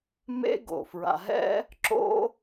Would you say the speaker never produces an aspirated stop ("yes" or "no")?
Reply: yes